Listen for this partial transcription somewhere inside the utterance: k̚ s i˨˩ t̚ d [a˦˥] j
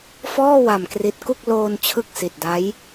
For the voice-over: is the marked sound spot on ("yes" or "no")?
yes